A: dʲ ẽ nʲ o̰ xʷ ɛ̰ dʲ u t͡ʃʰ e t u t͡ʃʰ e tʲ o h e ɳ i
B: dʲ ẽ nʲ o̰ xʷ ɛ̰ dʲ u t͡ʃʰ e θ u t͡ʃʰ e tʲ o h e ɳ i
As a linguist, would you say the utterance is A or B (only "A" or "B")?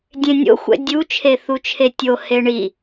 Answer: B